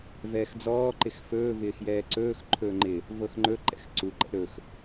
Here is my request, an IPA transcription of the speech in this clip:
vɛːxd͡zɔː ǃɪxfɵː vɪːxjɛːǀɵːx ǃʰɵːŋ͡ǃɪ | vɤxŋ͡ǃɵ ǃɛ̰xǀu ǃɛ̰ɾɵx

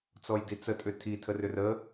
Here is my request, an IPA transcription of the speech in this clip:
t͡sɔjdit͡sə tʼʏtʰi tʰərʏrə

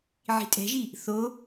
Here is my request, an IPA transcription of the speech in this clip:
ʕi̤tʼɛ̤ʒi | θo

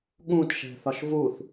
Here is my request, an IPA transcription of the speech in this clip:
ɠũtʃɛ̤θɒʃ vuθ

